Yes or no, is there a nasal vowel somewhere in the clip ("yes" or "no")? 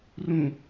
yes